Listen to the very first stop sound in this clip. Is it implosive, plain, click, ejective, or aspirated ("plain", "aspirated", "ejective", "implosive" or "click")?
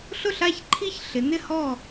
click